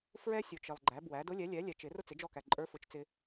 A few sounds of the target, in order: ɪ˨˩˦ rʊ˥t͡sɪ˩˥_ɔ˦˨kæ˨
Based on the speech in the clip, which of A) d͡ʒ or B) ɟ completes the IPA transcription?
A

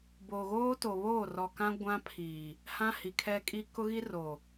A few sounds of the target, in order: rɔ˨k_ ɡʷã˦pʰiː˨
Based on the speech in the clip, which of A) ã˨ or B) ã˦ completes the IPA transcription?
B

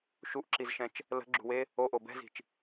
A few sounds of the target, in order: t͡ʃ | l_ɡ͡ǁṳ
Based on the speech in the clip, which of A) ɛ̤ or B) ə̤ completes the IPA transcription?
B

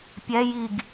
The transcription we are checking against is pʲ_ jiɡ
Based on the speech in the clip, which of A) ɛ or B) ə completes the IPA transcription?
A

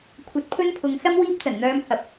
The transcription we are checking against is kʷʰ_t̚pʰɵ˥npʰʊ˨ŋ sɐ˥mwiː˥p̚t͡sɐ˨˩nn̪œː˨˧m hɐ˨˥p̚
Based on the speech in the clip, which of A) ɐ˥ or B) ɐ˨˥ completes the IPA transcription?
B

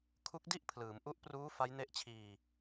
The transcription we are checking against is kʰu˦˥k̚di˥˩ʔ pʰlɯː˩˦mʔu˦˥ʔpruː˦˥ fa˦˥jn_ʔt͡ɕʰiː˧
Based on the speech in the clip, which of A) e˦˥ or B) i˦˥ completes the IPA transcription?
A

